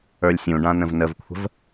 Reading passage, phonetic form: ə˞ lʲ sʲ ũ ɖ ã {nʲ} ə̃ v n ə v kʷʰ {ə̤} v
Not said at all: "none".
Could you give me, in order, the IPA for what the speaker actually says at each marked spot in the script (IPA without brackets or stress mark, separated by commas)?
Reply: n, ə̤